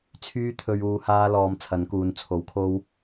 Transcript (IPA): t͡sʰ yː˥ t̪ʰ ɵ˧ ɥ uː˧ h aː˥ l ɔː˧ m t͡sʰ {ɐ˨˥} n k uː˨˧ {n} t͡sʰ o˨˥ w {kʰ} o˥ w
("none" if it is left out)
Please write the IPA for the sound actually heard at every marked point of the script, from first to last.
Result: ɐ˨˥, n, kʰ

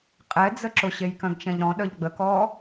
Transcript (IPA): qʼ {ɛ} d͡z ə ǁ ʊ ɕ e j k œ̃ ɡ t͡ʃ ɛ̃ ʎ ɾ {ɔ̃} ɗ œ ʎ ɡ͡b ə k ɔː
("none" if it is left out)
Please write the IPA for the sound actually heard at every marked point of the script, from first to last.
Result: ɛ, ɔ̃

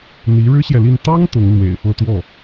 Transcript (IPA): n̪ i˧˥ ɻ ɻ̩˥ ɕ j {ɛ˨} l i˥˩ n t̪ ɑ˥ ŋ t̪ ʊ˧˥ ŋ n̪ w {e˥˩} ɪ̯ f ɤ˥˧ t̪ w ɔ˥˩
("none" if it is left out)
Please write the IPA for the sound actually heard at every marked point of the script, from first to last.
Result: ɛ˨, ḛ˨˩

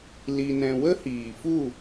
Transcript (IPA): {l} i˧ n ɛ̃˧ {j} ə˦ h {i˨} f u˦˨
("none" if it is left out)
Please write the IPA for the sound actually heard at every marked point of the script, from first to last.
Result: l, w, iː˨

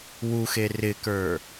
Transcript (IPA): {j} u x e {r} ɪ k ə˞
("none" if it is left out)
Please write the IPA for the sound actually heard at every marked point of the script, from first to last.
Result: w, r

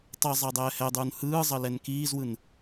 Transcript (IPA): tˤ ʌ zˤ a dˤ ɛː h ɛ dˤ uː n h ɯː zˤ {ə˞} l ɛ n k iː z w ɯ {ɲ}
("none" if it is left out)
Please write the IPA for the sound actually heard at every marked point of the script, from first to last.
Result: ʌ, n

